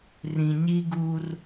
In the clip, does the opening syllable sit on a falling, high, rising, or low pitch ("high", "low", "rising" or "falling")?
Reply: low